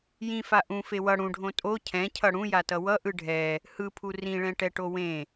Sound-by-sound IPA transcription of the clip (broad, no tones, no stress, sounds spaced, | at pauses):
j ĩ f a ʔ ũ f e w ʌ ɽ ũ ɖʱ õ tʼ o cʰ ɛ̃ cʰ ʌ ɽ ũ j a t ʌ w ʌ ʔ ɯ ɖʱ ɛ | h ɯ pʰ u r ĩ ɭ ɛ̃ ʈ ɛ ʈ o w ẽ